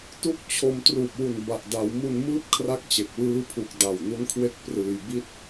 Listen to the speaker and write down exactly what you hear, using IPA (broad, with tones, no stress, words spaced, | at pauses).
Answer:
tu˦˥k̚ t͡ɕʰo˧m truː˨˩p̚wu˨˩n ba˨˩ʔda˩˦wmu˧n mɯː˥˩p̚kʰra˦˥k̚t͡ɕe˨˩k̚wɯː˦˥ pʰu˨˩k̚ da˨˩w nu˦˥nkʰwe˦˥k̚ prɯː˧jbi˥˩t̚